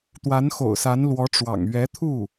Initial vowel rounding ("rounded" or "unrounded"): unrounded